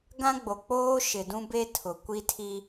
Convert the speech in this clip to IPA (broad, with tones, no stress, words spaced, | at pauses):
ɡã˦ɡ͡bo˨k͡poː˦ ʃɪ˨dũ˦ be˦tʰʊ˨ kʷi˦tʰi˦